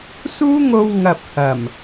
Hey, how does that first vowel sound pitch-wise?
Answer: high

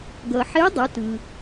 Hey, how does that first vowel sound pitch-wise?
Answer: low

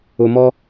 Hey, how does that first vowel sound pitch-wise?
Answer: low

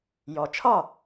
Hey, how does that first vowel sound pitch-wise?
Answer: low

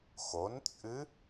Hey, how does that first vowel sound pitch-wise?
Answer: rising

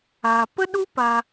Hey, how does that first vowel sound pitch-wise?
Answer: low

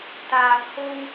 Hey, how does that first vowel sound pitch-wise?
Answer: low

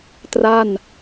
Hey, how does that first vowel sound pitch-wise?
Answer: falling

